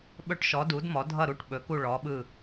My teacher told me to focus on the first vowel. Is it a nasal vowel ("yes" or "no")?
no